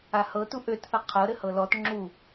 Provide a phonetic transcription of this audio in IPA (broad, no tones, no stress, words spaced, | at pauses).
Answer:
ahɤ tuʔøtθʌ qʰɤ ɾɘhɤlɔt ŋ͡ǁu